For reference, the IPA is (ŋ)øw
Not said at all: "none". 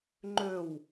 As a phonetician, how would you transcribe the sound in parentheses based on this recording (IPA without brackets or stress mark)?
ŋ͡ǃ